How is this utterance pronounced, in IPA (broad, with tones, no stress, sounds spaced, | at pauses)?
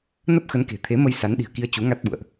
n ə˦˥ p̚ x ə˨˦ n k e̤˨˩ t̪ʰ e˨˦ m ə˧ j s a˨˦ n ɗ i̤˨˩ ə̯ k i˧ ə̯ t͡ɕ u˨˦ ŋ a˦˥ t̚ ɓ ṵ˧˨ ə̯ ʔ